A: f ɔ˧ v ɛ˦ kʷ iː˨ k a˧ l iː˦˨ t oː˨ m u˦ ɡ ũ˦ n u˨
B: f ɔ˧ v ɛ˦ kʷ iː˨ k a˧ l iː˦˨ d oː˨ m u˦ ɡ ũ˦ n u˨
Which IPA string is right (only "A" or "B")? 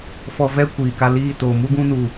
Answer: A